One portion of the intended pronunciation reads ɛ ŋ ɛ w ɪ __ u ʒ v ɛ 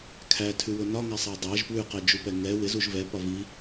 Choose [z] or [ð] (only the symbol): z